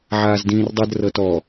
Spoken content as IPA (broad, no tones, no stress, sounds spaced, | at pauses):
ʕ aː z d ĩː r dˤ ɯ d r ɤ t ɔ